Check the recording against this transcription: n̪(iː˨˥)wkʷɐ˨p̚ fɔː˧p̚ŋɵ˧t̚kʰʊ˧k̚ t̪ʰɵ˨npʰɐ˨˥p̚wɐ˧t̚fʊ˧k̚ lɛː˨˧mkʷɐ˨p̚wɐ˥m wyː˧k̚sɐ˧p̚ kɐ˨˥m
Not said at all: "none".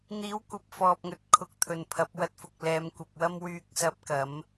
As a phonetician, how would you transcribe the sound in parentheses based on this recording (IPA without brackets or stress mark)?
iː˨˥